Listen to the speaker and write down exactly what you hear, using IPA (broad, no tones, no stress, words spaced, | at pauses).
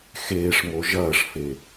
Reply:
xeːʂmo ʒɐːʂfe